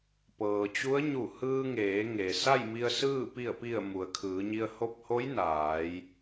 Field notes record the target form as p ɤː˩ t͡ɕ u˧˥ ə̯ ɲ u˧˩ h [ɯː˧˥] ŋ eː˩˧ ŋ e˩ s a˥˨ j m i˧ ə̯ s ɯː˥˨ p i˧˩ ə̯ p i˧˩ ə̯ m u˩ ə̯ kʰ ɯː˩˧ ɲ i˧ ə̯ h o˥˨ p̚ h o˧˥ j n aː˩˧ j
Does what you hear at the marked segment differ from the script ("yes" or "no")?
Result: yes